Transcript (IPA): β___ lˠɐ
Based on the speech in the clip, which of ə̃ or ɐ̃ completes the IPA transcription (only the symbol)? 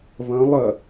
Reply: ɐ̃